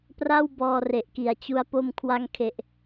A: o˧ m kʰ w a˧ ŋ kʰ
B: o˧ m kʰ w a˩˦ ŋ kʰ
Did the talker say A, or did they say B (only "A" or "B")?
A